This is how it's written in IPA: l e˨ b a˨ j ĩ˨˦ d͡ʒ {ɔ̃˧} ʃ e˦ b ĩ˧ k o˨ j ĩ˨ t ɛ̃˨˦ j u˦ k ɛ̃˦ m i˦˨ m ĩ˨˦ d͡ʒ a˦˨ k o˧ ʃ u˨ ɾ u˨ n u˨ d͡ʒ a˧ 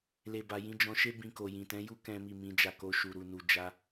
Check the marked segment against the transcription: correct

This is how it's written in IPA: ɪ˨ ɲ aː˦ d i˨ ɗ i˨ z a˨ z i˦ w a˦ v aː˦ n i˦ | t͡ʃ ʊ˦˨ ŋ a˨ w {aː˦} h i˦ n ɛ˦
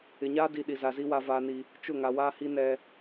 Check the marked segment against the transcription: correct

